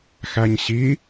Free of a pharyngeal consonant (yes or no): yes